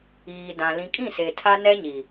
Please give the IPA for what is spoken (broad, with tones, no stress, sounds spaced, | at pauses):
iː˨ d ã˨ l ĩ˨ kʼ ĩ˦˨ s e˨ tʰ a˦ n ɛ˦ ɲ i˨